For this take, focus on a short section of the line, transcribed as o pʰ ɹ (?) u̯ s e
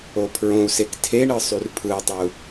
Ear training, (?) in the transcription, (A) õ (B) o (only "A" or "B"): A